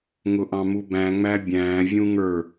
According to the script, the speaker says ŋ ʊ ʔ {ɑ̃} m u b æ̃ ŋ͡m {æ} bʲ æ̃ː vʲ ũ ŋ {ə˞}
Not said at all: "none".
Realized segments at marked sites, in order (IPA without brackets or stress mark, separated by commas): ɑ̃, æ, ə˞